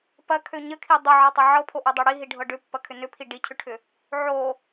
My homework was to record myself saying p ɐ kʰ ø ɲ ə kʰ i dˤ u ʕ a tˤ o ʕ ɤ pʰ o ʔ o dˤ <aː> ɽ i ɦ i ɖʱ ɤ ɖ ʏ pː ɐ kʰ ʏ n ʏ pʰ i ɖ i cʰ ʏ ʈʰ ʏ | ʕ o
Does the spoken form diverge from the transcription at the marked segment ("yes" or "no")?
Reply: yes